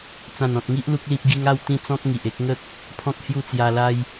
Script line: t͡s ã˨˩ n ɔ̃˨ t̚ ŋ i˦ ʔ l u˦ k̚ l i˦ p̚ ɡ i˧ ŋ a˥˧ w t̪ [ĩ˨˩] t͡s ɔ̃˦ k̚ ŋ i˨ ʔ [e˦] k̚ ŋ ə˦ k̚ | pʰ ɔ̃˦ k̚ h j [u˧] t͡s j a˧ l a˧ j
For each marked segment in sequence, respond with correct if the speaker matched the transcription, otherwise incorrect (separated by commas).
incorrect, correct, incorrect